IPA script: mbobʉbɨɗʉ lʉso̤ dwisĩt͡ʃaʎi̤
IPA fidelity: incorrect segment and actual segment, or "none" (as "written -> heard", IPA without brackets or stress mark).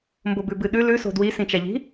none